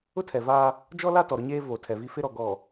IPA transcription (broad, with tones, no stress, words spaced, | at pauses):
ʊ˦tʰɛ˨vaː˦ | d͡ʒɔ˦la˦ tɔ˨ɾʊ˦ɲeː˦ vo˨ tʰɛ˨vi˦fɪ˦ɾɔ˨ ɡɔ˨